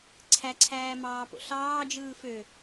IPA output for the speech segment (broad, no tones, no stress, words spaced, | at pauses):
ǀʰæǀʰæːmɑːpo̰ ɬɑːd͡ʒɯː fø